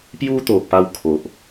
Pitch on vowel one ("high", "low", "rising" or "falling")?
high